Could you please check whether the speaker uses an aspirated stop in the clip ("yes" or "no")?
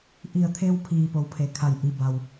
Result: yes